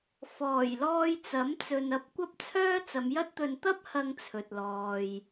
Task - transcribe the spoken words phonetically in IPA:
f ɔː˨˩ j l ɔː˧ j t͡s ɐ˨˥ m t͡s ɵ˨ n ɐ˨ p̚ kʷ ɐ˧ p̚ t͡sʰ œː˥ t͡s ɐ˨˧ m j ɐ˥ t̚ t̪ ɵ˧ n t̪ ɐ˥ p̚ h ɐ˧ ŋ t͡sʰ ɵ˨ t̚ l ɔː˨ j

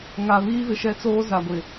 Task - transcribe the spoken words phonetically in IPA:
ŋ a˨ β iː˦ v ɪ˨ ʃ ɛ˦ t͡s oː˦ z a˨ ɡʷ ɪ˨

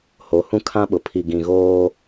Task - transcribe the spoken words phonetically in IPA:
h o˨˦ h ũ˦ kʰ ã˦ ɓ ʊ˨ pʰ i˨ ɡ ĩ˨ ɣ oː˦

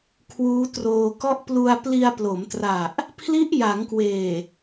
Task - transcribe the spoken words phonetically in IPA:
kʰ w uː˦˥ t r oː˧ k ɔ˥˩ ʔ p l u˧ a̯ p l i˧ a̯ p l o˩˦ m t r a˨˩ ʔ | pʰ l i˦˥ ʔ j a˩˦ ŋ k w eː˨˩

